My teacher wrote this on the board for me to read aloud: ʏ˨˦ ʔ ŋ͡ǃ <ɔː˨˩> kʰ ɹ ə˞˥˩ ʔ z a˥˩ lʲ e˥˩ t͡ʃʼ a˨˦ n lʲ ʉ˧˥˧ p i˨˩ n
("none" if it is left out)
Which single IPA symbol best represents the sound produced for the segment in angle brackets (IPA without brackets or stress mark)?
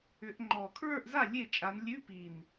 ɔː˨˩